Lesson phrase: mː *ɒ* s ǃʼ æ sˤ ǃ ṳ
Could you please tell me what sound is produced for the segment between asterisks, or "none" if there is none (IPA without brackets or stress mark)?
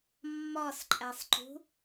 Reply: ɒ